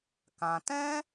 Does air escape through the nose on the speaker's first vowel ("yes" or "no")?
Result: yes